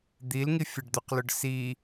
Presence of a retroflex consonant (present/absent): present